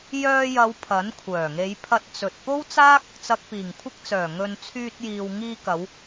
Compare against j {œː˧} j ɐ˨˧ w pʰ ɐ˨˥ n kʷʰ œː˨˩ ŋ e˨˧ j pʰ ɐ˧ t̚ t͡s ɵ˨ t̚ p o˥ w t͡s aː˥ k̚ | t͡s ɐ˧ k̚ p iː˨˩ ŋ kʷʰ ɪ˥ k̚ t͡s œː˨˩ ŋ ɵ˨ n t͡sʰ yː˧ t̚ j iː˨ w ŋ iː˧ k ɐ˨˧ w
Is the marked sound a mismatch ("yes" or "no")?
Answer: no